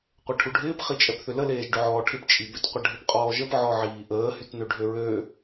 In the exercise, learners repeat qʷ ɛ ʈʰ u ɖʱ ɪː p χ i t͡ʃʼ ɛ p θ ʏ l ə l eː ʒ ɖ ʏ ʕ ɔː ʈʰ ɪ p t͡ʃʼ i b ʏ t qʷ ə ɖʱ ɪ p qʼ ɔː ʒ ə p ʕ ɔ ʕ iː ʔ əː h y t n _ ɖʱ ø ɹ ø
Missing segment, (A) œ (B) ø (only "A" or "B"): B